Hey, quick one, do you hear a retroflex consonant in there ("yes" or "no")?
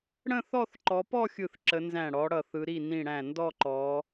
yes